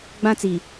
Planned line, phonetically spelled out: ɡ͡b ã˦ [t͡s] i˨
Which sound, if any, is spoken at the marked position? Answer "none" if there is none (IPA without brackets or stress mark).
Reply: t͡s